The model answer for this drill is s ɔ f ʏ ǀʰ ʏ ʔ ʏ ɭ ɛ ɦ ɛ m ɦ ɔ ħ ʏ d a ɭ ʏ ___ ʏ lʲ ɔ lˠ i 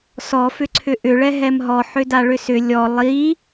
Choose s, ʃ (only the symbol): s